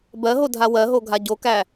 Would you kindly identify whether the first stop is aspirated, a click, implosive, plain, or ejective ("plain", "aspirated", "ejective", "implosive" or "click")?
plain